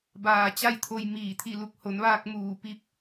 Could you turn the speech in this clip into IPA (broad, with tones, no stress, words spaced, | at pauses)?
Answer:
baː˧t͡ɕa˥˨jt̪ʰo˧j miː˧˩t̪ʰi˥˨lu˧k̚ ho˩˧nʋaː˧k̚ muː˧˩pi˥˨p̚